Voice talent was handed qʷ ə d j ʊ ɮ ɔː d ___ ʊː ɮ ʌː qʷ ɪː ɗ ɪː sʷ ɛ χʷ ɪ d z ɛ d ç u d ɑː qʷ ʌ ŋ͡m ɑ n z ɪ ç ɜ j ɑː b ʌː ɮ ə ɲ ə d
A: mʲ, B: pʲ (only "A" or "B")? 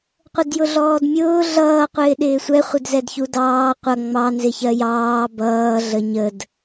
A